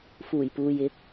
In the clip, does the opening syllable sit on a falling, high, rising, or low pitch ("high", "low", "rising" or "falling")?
low